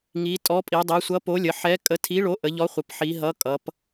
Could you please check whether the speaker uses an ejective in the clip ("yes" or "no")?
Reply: yes